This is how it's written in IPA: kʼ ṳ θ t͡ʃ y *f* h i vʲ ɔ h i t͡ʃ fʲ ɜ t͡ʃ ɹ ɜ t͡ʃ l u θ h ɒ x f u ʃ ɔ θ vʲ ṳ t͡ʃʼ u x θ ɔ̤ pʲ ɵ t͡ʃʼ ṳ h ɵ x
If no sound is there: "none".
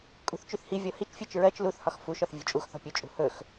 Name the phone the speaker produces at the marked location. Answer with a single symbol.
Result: θ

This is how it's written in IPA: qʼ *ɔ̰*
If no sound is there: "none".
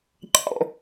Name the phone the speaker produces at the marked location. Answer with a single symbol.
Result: ɔ̰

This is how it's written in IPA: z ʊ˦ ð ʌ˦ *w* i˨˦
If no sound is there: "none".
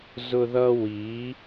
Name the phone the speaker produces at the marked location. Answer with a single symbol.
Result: w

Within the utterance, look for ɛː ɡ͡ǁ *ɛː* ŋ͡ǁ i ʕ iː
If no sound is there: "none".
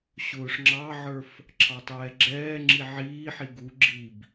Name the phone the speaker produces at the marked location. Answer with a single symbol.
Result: ɛː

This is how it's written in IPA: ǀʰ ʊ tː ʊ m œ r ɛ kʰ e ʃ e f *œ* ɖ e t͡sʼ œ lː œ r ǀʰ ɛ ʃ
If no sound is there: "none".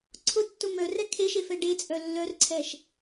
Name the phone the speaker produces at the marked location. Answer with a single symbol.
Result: ɛ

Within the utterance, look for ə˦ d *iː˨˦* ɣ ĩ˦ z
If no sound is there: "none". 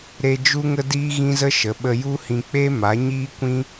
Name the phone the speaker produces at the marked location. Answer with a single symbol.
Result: iː˦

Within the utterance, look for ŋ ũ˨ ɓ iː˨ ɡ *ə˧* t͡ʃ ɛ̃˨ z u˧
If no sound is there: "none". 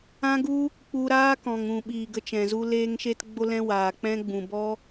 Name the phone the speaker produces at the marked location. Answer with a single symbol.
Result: ə˧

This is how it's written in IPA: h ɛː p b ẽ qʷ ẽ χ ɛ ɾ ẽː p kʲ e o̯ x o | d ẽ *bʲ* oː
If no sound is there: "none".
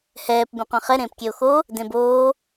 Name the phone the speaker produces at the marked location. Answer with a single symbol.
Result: b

